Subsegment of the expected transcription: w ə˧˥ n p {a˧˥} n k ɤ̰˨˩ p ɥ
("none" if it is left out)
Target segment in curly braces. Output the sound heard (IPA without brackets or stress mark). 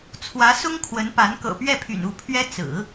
a˧˥